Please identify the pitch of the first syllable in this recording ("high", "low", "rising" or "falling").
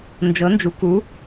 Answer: rising